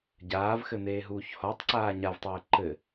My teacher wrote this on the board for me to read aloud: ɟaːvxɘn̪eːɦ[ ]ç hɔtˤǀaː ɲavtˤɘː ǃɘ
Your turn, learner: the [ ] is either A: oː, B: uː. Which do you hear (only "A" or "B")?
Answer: B